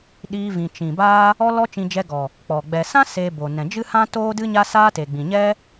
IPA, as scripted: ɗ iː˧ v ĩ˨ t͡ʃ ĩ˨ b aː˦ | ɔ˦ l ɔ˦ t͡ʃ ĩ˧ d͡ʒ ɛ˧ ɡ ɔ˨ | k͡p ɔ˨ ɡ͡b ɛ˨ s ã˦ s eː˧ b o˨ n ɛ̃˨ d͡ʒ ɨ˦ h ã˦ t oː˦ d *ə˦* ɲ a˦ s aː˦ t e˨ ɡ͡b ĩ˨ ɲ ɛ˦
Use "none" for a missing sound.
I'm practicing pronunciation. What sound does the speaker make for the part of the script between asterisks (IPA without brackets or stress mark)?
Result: ɨ˦